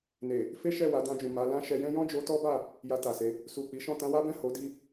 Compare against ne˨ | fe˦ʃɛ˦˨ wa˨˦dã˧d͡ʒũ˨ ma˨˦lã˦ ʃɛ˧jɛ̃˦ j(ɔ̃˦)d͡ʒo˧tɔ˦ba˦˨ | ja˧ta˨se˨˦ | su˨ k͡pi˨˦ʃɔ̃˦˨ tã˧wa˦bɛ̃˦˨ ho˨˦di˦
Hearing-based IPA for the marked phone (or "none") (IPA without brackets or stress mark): ɔ̃˦